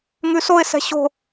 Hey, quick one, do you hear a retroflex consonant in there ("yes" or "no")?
no